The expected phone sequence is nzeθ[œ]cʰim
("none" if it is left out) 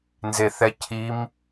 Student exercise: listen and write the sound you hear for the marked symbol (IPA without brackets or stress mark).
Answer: ɛ